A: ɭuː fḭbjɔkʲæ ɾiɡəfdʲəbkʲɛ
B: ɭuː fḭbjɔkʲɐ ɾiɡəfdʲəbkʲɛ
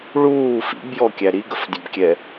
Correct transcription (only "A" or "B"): A